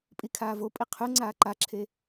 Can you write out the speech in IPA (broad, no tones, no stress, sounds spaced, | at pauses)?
pʼ i kʰ aː v o pʼ i qʰ ʉ ŋ͡ǀ aː ǃ a ǁʰ e